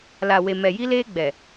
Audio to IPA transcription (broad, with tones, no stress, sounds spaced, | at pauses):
l a˨ w e˨ m ɛ˨ j i˦ l eː˦ ɡ͡b ɛ˨